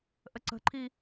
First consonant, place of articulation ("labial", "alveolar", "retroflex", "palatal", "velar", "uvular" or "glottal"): glottal